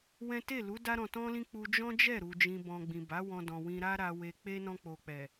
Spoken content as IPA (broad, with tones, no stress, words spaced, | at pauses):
wɛ̃˦ te˦˨lu˨˦ da˦ɾɔ̃˧tɔ̃˦lĩ˦ k͡pu˧d͡ʒɔ̃˦d͡ʒɛ˦˨ɾu˨ d͡ʒĩ˧bɔ̃˧ ɡ͡bĩ˨ba˨˦ wɔ̃˧dɔ̃˨wĩ˧ ɾa˦ɾa˧we˧k͡pe˦ nɔ̃˧k͡po˨k͡pɛ˨